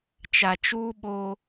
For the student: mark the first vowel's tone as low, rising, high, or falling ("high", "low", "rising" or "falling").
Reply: low